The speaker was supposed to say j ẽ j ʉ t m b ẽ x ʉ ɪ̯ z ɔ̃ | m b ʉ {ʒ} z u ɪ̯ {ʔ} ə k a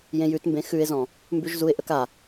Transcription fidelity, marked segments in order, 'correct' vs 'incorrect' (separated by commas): correct, correct